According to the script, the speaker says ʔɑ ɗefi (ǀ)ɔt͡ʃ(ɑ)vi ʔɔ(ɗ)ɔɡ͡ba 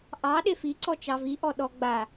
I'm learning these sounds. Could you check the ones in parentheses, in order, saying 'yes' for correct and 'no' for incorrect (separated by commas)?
yes, yes, yes